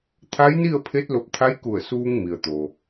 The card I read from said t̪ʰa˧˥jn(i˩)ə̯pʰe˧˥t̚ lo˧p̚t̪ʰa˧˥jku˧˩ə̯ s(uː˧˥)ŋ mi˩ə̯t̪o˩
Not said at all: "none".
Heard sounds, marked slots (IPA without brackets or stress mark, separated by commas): i˥˨, uː˧